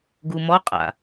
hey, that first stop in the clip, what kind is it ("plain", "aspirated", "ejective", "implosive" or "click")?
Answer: plain